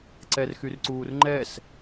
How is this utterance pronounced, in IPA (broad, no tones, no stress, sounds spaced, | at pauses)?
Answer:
ǀ ɛ r x y r ǀ uː r ŋ͡ǃ ɛ s